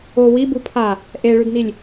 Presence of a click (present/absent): absent